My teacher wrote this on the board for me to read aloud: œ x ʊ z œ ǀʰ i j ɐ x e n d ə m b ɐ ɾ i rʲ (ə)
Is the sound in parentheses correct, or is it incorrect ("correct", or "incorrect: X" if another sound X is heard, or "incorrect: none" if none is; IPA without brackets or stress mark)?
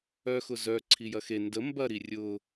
incorrect: ʊ